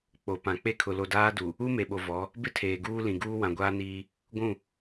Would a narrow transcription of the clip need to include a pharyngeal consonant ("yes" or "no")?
no